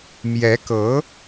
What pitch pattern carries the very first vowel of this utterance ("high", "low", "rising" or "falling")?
rising